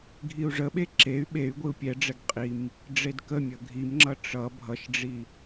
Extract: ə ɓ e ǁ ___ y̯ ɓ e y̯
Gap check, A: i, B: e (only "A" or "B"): B